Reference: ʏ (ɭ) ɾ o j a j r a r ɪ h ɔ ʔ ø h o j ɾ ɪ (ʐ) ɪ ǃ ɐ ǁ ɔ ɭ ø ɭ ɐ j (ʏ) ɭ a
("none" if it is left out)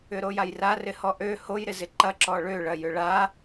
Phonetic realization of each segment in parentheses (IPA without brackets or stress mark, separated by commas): none, z, ʏ